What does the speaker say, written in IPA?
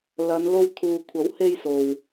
l ɐ˨˧ n l o˧ w t̪ʰ uː˨ kʷʰ ɐ˨˥ w h e˧ j s o˨ w

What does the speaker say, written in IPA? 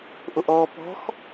ʔ o ʔ ɔː p ɔ̤ x

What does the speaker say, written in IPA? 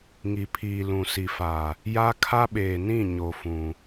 ŋ i˨ pʰ iː˨ l ũ˨ s i˨ f a˨ | j a˦ kʰ a˦ ɓ eː˨ n ĩ˦˨ ɲ o˨ f ũ˨

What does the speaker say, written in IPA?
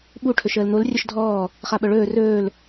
ɓ u ʈʰ ɵ ʃ əː l n̪ o l rʲ œ ʃ dʱ ɔː | χ a ɓ œ ɭ ɵː r ɵː l

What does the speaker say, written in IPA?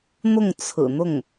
n̪ ʊ˥˩ ŋ t͡sʰ ɹ̩˨˩ n̪ ʊ˥˩ ŋ

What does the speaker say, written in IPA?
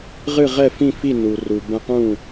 ʁ ɨ˥˩ ʁ ɛ˥˩ f ĩ˥˩ f i˥˩ n u˩ r u˩ b ɛ̃˧ q ũ˥˩

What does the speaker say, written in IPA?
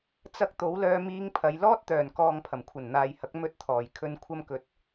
t͡s ɐ˧ k̚ t̪ o˨˥ w l œː˧ m iː˧ ŋ pʰ ɐ˨˧ j l ɔː˥ t̚ t̪ œː˨˩ n k ɔː˨ ŋ pʰ ɐ˨˩ m kʷʰ ɐ˨˩ n n̪ aː˨ j h ɐ˨˥ k̚ m ɵ˧ t̚ t̪ʰ ɔː˨˩ j kʰ ɵ˧ n kʷʰ ɐ˧ m k ɵ˨˥ t̚

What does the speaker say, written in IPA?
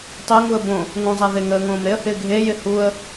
tˤ e ŋ u ə̯ b õ | ŋ ũ zˤ a ð ɪ ŋ əː ŋ õː m ɾ e ə̯ h ɪː ɡʱ e j ɪ h u ə̯

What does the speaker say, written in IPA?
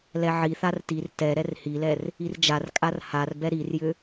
l ɛ ʕ i θ a r t i r t ɛ ɾ ɛ r h i l ɛ r | i r d͡ʒ a r kʼ a r h a r b ɛ ɾ i r j ʏ

